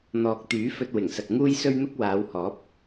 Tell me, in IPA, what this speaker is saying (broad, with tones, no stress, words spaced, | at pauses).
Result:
n̪ɔː˨k̚t̪yː˨˥ fɵ˧t̚wɪ˨˩ŋsɐ˨k̚ ŋuː˥jsɵ˥ɥn̪ʊ˥k̚ waː˨˧whɔː˨˥p̚